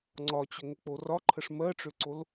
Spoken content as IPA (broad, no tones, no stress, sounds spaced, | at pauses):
ŋ͡ǀ ɒ t͡ɕ ʏ ŋ ʏ k͡p o r ɒ ǃʰ ə ʂ m ɜ ʈ͡ʂ ʏ ǀ o l